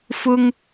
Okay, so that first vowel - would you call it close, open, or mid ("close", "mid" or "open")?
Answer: close